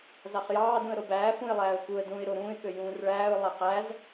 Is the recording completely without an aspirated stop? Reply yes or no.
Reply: yes